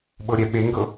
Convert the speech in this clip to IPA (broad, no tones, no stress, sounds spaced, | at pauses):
ɓ ɤ ɾʲ ɛ ɓ e ŋ ɡ ɤ